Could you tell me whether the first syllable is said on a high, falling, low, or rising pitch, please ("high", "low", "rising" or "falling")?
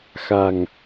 low